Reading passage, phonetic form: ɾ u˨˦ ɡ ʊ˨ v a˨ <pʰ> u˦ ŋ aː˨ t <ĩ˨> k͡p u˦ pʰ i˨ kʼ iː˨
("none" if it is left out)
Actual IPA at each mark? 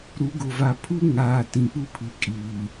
pʰ, ĩ˨

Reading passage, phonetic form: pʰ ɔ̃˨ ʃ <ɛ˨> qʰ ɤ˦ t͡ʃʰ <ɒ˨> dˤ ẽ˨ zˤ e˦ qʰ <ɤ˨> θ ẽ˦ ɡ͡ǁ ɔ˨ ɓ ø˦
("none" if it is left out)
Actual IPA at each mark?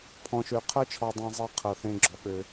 ø˨, ɒ˨, ɤ˨

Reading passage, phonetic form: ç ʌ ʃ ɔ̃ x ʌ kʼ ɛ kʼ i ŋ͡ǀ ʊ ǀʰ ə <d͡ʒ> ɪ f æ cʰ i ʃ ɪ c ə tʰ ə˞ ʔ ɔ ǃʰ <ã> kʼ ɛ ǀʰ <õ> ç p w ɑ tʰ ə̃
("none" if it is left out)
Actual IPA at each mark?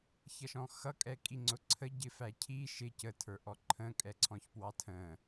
ɟ, ə̃, ɔ̃

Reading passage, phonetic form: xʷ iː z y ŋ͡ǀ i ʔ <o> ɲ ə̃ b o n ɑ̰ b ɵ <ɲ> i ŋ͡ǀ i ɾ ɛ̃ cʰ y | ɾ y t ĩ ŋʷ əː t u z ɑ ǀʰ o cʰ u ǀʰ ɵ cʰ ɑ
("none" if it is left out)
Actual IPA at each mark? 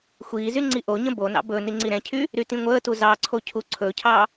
o, n

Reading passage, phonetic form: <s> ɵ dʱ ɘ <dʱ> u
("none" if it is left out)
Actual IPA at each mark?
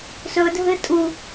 s, tʼ

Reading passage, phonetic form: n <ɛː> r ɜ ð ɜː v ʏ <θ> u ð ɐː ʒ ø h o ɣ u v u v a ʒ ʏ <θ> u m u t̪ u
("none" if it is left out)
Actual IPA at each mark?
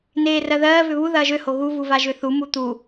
eː, β, θ

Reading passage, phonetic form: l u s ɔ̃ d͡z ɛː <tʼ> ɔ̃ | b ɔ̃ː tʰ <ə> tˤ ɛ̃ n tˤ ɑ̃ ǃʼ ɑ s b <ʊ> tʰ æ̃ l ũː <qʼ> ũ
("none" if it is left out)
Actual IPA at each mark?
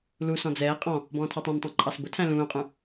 qʼ, ɑ, ʊ, qʼ

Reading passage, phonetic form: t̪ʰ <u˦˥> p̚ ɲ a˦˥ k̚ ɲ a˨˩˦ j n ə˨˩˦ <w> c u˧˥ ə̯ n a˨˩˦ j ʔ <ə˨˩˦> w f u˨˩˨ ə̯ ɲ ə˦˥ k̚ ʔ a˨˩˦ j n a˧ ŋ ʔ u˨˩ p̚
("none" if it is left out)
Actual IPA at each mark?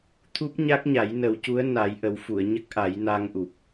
u˦˥, w, ə˨˩˦

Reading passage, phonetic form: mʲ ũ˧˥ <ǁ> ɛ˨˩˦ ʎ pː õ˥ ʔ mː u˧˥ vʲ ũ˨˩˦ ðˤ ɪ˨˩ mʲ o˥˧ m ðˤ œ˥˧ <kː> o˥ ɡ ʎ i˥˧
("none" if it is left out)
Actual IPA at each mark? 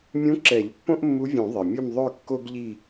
ǁ, kː

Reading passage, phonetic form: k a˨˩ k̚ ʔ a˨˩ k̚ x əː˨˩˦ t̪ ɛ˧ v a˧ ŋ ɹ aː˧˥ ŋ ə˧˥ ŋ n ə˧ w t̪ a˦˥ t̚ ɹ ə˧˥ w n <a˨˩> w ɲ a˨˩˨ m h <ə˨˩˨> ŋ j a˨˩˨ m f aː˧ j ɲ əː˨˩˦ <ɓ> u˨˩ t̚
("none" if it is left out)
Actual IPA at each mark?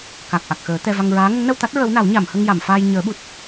a˨˩˦, ə˧, ɓ

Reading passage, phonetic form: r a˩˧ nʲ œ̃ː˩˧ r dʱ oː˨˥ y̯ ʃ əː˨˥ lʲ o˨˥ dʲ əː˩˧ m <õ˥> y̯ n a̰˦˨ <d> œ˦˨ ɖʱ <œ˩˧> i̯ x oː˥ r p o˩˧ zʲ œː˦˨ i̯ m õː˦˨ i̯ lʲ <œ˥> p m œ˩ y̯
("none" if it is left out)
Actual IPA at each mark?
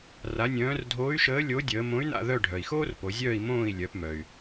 õ˨˥, ð, œ˩, œ˩˧

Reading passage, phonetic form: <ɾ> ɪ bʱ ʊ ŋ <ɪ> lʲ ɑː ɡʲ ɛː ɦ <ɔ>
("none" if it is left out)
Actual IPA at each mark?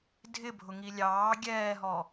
dʱ, i, ɔ

